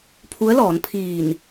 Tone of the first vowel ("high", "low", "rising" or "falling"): rising